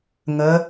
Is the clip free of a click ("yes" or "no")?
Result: yes